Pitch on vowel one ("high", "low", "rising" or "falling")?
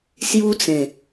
high